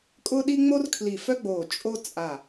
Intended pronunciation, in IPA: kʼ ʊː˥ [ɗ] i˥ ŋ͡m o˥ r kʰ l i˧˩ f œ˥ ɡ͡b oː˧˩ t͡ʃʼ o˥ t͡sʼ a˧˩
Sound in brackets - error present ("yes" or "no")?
no